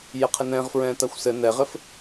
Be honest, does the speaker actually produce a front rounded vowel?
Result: no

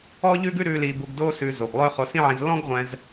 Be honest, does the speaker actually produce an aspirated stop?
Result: no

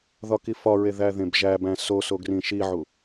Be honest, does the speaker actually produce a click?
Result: no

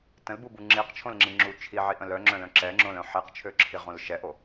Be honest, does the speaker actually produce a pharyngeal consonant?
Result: yes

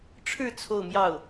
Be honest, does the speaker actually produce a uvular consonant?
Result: no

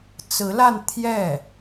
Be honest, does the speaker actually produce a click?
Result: no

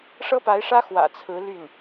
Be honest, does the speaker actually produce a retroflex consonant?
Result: yes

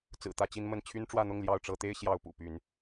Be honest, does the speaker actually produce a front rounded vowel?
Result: yes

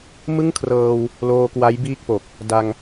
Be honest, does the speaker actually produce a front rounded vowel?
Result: no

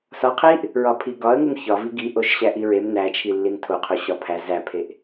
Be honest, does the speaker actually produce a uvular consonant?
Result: yes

